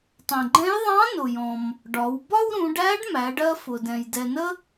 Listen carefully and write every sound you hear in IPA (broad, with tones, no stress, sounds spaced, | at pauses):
tˤ ɛ̃˩ ɡ͡ǃ ɛ̃˧˥ j ðˤ ɑ̃˧˥ n ʊ˩ j ɔ̃˩ m | ɖ ɒ˩˧ w b ɒ˥ w ɾ ũ˩˧ ɖ æ˧˥ ɖ m æ˩˧ ɖ ɜ˧ f ʊ˩ d ɛ̃˩ j d ɛ˩ n ə˧